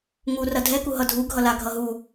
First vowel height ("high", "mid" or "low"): high